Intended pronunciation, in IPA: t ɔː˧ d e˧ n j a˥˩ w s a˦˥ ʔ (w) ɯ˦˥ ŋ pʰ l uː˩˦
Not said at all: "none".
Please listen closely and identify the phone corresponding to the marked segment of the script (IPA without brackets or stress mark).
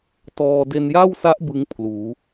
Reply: b